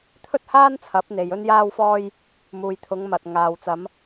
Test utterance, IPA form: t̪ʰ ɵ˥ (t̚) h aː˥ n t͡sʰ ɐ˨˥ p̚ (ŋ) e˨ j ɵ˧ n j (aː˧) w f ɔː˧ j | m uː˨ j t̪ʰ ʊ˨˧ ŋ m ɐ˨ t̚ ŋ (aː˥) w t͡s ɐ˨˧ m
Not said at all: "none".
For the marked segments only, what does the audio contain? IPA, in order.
t̚, n̪, aː˧, aː˨

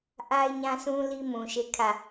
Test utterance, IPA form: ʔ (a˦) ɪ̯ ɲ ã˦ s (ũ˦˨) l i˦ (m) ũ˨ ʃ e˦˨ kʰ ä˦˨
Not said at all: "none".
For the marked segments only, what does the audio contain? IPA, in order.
a˦, ũ˦, m

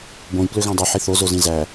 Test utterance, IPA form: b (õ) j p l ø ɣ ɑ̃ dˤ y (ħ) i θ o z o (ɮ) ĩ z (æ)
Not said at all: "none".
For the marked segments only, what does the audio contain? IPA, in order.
õ, ħ, z, æ

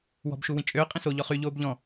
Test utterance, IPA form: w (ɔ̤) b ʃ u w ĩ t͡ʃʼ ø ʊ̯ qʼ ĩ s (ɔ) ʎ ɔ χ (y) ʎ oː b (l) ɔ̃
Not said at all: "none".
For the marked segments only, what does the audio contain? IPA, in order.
ɔ̤, o, y, ʎ

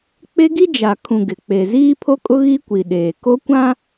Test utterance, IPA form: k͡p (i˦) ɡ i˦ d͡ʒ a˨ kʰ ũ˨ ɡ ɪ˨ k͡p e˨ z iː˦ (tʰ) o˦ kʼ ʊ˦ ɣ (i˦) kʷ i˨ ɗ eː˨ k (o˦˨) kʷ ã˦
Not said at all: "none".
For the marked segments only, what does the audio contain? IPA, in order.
e˦, pʰ, i˦, o˦

